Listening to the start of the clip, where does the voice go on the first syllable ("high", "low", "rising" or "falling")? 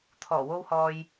low